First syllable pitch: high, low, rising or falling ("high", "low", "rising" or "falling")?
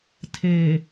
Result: low